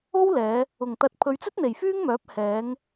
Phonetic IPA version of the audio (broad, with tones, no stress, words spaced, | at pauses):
o˥wlɛː˨˧ | ʊ˨˩ŋt̪ɐ˨t̚ pʰɵ˨˧ɥt͡sɵ˥t̚n̪e˨˩j fyː˥ŋmœː˨˥p̚ hɛː˨˧ŋ